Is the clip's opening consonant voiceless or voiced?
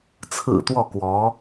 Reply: voiceless